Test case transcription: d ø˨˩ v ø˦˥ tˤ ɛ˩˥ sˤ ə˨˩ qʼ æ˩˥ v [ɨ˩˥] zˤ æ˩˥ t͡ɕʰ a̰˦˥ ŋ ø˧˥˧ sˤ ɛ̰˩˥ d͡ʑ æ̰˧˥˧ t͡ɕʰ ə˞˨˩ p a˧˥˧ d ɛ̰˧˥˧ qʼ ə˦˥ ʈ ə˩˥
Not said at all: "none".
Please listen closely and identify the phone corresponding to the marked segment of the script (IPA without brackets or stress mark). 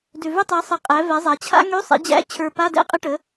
ɛ˩˥